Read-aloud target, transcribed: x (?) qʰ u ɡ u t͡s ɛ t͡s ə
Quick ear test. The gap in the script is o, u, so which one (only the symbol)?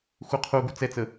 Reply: u